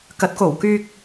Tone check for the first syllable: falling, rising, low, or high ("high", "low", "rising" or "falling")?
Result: rising